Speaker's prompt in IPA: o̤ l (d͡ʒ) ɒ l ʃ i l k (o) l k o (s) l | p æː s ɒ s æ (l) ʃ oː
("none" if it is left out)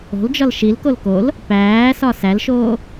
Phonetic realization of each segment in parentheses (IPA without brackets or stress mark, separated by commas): d͡ʒ, o, none, l